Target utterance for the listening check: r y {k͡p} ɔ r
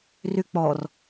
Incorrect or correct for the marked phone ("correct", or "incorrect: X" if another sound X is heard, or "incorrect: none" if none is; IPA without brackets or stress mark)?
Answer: correct